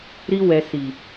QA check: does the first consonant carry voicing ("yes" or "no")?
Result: yes